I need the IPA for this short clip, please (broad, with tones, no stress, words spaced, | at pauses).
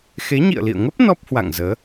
xe˨˦ɲḭ˧˨ə̯lḭ˧˨ə̯ŋə˦˥p̚ nɔ˦˥p̚hwa̰˧˨ŋzəː˨˦